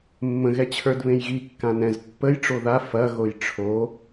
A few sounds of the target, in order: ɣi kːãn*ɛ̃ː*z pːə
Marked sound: incorrect: ɛ̃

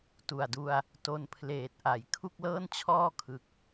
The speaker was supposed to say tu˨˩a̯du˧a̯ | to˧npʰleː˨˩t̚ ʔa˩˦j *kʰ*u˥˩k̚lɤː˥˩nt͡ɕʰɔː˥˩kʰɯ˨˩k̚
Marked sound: correct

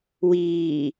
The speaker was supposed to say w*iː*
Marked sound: correct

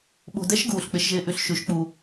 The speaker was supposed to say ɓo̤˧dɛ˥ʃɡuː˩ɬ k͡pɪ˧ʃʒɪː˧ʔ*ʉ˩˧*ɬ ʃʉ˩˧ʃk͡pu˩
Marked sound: incorrect: ʉ˧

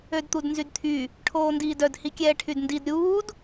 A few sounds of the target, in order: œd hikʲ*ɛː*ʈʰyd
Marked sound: correct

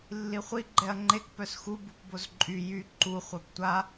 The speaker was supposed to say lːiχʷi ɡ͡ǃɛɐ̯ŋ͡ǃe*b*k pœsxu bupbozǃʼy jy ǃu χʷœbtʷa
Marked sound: incorrect: none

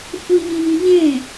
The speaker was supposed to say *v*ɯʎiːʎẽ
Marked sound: incorrect: f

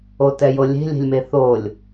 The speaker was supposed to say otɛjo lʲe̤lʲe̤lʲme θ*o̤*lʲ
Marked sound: incorrect: o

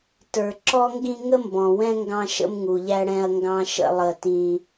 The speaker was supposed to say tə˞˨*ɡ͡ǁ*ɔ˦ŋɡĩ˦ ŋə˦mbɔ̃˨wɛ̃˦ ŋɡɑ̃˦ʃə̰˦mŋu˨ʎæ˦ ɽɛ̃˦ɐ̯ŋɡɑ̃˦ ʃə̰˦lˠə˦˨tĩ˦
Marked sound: incorrect: ǁ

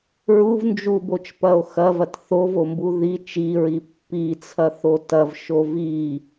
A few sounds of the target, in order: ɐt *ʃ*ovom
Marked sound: incorrect: θ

